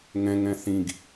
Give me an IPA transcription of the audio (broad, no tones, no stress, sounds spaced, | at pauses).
ŋ ɛ̃ ŋ ɛ̃ θ ĩ ɡ